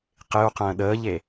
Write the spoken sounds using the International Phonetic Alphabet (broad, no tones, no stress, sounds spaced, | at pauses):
q ɪ u̯ q ə̃ː ɗ əː ʎ e